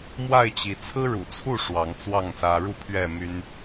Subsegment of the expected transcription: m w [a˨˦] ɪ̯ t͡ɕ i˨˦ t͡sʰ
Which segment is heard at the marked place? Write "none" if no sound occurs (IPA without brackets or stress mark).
a˥˨